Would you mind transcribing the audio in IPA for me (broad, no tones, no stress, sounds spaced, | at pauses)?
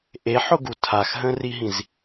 ʔ e ħ ʊ ɡ u tʰ a x ɦ ə̃ r i ɦ ĩ z